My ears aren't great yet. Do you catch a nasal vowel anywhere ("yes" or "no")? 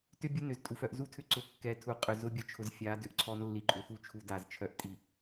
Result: no